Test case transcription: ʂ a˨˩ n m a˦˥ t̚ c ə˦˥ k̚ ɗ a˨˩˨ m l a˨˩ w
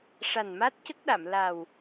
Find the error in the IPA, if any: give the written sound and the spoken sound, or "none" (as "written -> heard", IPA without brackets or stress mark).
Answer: none